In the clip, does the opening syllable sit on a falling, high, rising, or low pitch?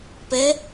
rising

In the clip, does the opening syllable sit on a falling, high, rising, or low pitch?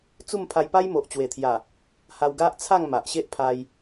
falling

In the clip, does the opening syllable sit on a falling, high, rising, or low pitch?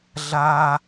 high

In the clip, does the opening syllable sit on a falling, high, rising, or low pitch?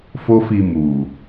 high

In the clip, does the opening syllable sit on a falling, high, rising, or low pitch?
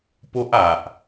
high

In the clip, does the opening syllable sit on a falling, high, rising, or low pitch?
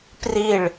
falling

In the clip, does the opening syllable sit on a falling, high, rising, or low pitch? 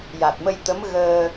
low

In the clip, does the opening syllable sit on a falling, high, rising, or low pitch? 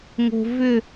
low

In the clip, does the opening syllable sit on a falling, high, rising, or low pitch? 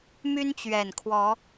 high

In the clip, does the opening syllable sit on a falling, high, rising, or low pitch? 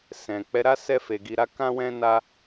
low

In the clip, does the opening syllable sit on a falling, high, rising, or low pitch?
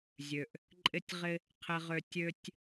low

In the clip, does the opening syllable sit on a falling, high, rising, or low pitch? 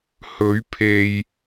rising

